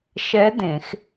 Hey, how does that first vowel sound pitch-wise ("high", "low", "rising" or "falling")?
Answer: rising